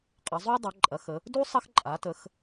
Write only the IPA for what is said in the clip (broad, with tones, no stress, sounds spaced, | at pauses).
qʼ ə˩˧ zˤ u˥ dˤ ɐ˩˧ ǃʼ ɐ˩˧ x ə˩˧ | d u˥ sˤ ɐ˥ x ǃʼ a˩˧ t ə˩˧ x